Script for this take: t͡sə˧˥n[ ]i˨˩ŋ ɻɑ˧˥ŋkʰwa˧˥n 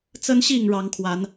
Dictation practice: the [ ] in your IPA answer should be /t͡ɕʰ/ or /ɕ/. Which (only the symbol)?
ɕ